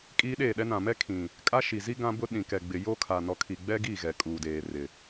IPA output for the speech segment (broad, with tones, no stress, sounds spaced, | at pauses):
kʼ iː˦ ɗ eː˦˨ ɗ ɛ˦ n ã˨ m ɛ˦ kʰ ĩ˨ | kʼ a˦ ʃ i˨ z i˦ ɡ ã˦ b ʊ˦ ɗ ĩ˨ k ɛ˨ ɡ͡b ɪ˨ j o˦ kʰ a˨ n ɔ˨˦ kʰ i˨ ɡ͡b ɛ˦ ɡ i˦˨ ɣ ɛ˨ kʼ uː˨ d eː˨ r ɪ˨